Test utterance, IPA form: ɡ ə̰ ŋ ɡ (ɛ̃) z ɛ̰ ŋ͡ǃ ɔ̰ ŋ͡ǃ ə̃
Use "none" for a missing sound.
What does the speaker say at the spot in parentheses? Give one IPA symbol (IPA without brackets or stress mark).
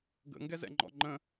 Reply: ɛ